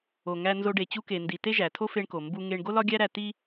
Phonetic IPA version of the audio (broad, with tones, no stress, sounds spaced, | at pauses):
o˩ ŋ æ˧ n z o˧ ɖ e˩ t͡ɕ u˧ k e˩ n d i˩ t e˥ ʒ æ˩ tʰ o˥ f e˧ ɳ k o˩ m b u˧ ŋ e˧ ɳ ɡ o˥ l ɒ˥ ɡʲ æ˥ ɾ æ˧ t i˥